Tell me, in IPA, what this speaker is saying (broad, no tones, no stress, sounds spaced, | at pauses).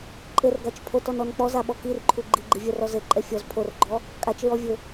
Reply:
ǃʼ ɘ r ɡ a t͡ʃ pʰ o t ɔ n ɔ n k͡p ɔ z a ɓ ɔ k i r ǃʰ u ɡ͡ǃ i ɡ͡ǃ i vʲ ɛ r ɔ z ɘ ǃʼ ɛ fʲ ɔ z pʰ o r ɡ͡ǃ ɔ | kʼ a t͡ʃ ɹ ɔ vʲ ɘ